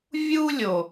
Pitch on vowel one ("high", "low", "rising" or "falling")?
high